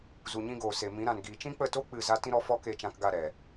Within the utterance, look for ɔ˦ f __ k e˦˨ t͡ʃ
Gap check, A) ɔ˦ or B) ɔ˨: A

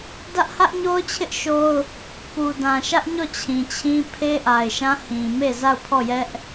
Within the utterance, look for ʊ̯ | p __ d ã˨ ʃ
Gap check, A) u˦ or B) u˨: B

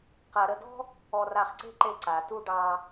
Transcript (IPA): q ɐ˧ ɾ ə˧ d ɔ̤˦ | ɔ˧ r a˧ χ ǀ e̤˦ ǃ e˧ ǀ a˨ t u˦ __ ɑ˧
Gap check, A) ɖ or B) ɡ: A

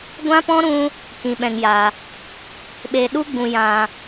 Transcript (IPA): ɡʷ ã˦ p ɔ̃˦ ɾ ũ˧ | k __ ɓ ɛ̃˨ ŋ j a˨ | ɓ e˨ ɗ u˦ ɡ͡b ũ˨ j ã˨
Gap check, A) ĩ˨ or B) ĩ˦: A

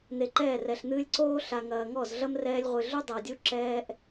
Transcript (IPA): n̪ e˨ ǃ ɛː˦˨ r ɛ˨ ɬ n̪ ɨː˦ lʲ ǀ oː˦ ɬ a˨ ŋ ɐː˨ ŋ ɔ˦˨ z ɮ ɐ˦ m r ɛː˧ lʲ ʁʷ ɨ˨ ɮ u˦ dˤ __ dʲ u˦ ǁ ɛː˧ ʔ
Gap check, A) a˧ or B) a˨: B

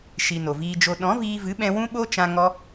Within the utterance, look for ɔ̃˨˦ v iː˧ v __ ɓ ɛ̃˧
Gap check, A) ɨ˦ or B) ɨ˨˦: B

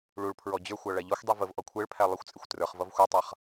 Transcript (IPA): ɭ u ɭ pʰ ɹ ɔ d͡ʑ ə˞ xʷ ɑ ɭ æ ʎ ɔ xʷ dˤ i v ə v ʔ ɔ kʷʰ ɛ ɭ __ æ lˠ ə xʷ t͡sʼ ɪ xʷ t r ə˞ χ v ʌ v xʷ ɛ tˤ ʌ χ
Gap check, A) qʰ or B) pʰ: B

